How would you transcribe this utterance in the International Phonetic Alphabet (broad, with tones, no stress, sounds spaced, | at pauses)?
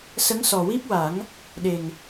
s ə˧˥ ŋ s ɔ˨˩ w i˦˥ p̚ w a˨˩˦ ŋ | ɗ e˨˩ ŋ